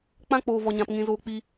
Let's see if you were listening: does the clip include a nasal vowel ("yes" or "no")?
yes